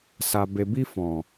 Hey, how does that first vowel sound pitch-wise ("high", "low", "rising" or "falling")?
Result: low